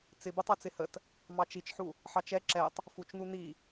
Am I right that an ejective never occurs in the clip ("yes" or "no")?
yes